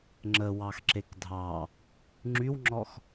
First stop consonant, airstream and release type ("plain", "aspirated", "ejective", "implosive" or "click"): click